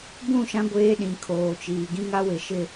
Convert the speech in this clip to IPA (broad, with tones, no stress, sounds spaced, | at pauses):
b ũ˦˨ ʃ ã˦ ɡʷ eː˦ ɗ ĩ˨ kʰ oː˨ t͡ʃ iː˨ ɡ ĩ˦ ŋ a˦ w ɪ˨ ʃ ɪ˦